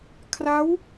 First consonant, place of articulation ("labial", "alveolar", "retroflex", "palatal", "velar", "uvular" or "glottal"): velar